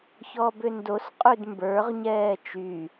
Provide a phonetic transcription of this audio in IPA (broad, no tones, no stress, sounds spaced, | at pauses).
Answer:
ç ɔ b ʏ n d o s qʼ ʉ d m b ə˞ ʁ ɲ ɛː t͡ʃ y